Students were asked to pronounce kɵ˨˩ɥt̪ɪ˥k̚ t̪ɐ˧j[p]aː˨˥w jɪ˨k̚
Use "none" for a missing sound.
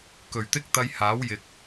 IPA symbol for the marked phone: h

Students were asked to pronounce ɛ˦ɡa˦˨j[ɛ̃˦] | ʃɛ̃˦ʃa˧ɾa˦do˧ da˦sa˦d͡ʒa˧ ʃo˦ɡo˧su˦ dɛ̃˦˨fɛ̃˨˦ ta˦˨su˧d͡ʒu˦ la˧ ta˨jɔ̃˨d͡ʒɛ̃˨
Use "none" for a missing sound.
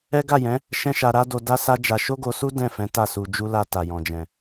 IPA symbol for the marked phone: ɛ̃˨˦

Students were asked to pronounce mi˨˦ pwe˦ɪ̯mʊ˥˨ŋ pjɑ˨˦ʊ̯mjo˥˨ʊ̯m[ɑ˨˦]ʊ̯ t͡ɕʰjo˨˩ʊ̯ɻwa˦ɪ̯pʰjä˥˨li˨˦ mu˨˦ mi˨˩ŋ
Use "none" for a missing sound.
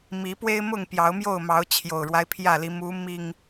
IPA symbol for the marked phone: ɑ˨˦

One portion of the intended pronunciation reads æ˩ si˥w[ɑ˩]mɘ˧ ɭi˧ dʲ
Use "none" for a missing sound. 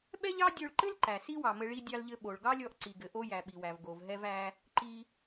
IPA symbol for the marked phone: ɑ˩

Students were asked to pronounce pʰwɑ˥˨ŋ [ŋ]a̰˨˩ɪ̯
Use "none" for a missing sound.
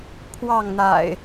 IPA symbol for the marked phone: n̪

